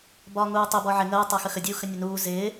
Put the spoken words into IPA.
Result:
b ɒː ŋ uː tˤ ɪ b ɔ ʕ ɪ ŋ əː tˤ æ x ə x ə dʲ uː x ə nʲ ə n uː z ɪː

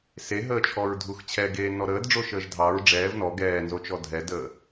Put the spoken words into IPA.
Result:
s e ɦ əː t͡ʃʰ ɔ ɹ dʱ u x t͡ɕʰ ɛ ɡ eː n ɔ ɾ əː d ɖ͡ʐ o ʃ əː ʒ dʱ ɑ ɹ ɖ͡ʐ ɛː v n ɔ ɡ ɛː n z o t͡ʃ ɔ dʱ ɛ d əː

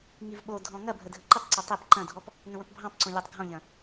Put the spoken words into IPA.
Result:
ŋ i v ɓ o dʱ ɔ̃ ŋ ɐ bʱ ə dʱ ə ǃ ɪ tˤ ǀ o tˤ ɪ p ǃ ɐ̃ dʱ ɔ p | ŋ ə̃ w ə̃ p bʱ ɑ̃ p ǀ õ lʲ ɑ tˤ ɡʱ ɔ̃ ʎ ɐ̃

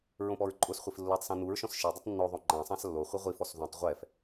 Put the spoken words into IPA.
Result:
ɹ õ p ɔ ɹ ǃʼ ʊ s χʷ i f lː o tˤ s ũ n u ɹ ʃ ɔ̃ s ʃ i dˤ ɪ tˤ nː o ðˤ o ŋ͡ǃ ã sˤ ã s lː o χʷ i ʁʷ i f ɔ s ð ũ tˤ ʁʷ ɛ f

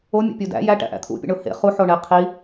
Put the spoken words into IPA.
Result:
o mʲ ṵ pʲ u d æ̰ j æ ʈ æ̰ ʔ æ̰ t̪ʰ ṵ pʲ ḛ ɳ o h ḛ χ u ħ o ɳ e qʰ i

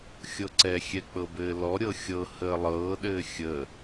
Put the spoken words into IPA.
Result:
xʲ ɤ ǀ ɛ xʲ ɛ k͡p ɤ b ɘː l ɔ ɾʲ ɤ xʲ ɤ h əː lˠ ɤː ɗ ɘː xʲ ə

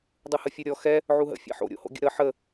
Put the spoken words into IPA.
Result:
dˤ ɯ h ə fʲ u ɾʲ ɔ x ɛ | ʕ u ɦ ə̰ fʲ ɛ̰ ħ o̰ ɾʲ o̰ h o̰ ɡʲ ə̰ ɾ ə ħ ə

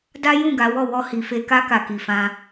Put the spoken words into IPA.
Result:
d a˦ j ũ˦˨ ɡ a˨˦ w ɔ˦˨ w ɔ˧ h i˨ f e˧ k a˦ k a˧ k i˨ f ã˧

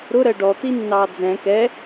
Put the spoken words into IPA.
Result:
ɾ ʊ ɾ ɜ ɖ ɔ t̪ i nː ɑː d͡z ɛ̃ k ɛ

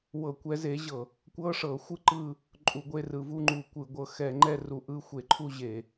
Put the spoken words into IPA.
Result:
w ɤ˧˩˧ kʷ ɛ˨˦ z e˨˦ ʑ ɤ˧˩˧ | kʷ ɤ˧˥˧ ʂ ɤ˧˩˧ xʷ ɯ˦˨ ǃ ɯ˦˨ | ǃʼ u˧˩˧ ɡʷ e˧˥˧ r ɯ˧˩˧ v u˦˨ ŋ͡ǃ u˧˩˧ kʷ ɯ˧˩˧ ɡʷ ɤ˨˦ x ɛ˧˩˧ ŋ͡ǃ ɛ˦˨ r u˧˩˧ ʔ ɯ˦˨ xʷ e˧˩˧ ǃʰ u˦˨ ʑ e˧˩˧

